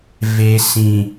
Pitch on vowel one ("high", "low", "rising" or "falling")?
low